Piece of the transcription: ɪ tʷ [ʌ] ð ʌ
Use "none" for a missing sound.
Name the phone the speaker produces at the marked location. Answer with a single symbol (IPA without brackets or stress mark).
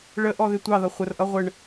ɑ